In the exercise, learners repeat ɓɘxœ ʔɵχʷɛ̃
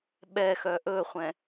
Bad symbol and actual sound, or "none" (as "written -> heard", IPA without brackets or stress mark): ɘ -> ɛ